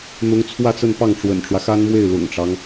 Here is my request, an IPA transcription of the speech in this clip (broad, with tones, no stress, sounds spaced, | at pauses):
n̪ ʊ˧˥ ŋ t͡sʰ w ä˥˧ t͡s ə˥˧ n p ɑ˥˩ ŋ ʈ͡ʂ w ə̰˨˩ n ʈ͡ʂ w ä˦ x a˥ n m w e˥˩ ɪ̯ l ʊ̰˨˩ ŋ ʈ͡ʂ ɑ˦ ŋ